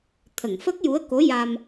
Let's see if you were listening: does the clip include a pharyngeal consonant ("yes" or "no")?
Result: no